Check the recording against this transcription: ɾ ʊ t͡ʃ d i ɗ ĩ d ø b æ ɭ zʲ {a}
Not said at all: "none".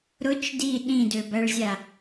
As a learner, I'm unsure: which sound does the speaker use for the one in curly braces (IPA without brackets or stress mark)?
a